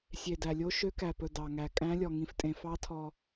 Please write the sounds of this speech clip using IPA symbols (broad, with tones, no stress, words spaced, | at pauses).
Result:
sʲe˨dæ˨lʲo˦˥ ʃø˦˥kæ˨pɵ˨ dɑ˨ŋæ˨ kʼæ̃˦˥lʲɔ˨ŋĩ˨ftʼẽ˨ fɑ˦˥tʰɔ˨